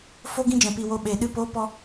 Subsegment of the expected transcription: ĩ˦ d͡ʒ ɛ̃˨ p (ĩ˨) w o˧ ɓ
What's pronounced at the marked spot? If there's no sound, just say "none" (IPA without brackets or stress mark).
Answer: i˨